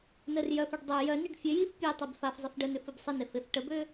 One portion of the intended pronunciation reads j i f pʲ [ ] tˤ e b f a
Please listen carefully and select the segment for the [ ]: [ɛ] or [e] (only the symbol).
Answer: e